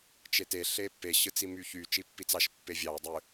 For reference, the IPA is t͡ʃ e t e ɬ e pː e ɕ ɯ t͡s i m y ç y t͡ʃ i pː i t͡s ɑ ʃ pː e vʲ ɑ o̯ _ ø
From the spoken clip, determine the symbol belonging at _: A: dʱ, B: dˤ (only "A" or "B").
B